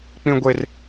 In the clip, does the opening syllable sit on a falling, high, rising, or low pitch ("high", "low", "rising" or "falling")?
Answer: high